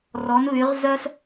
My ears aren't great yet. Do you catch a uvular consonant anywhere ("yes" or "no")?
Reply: yes